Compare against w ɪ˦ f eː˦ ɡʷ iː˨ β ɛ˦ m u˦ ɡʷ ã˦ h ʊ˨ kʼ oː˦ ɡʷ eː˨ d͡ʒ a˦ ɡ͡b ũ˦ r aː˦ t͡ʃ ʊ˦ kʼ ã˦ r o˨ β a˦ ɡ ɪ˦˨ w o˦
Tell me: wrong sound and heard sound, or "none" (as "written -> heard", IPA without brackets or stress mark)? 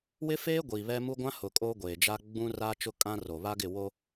none